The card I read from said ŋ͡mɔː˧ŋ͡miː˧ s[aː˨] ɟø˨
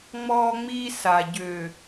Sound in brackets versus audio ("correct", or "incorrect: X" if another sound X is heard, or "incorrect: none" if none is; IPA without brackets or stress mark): incorrect: a˨